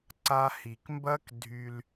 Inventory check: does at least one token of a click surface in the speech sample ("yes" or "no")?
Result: yes